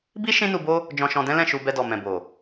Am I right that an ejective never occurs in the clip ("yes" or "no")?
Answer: yes